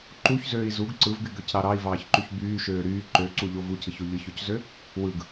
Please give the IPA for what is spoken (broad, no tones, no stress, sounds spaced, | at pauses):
ǃ u ç z øː i̯ z u ɡ ǀ ɯ v ɡ y ɡ ø c ɾ ɑ ɾ ɑ i̯ v ɑː ç ǃ y ç b yː ʃ øː ɾ yː ǃ ø ǀ u ʎ o v u c ɯ ç o ʎ ɯ ç o c z ø | w ɯ ɡ